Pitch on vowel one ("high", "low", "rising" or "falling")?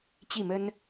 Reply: falling